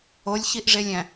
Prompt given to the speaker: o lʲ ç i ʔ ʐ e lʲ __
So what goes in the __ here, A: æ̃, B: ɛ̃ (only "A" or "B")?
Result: A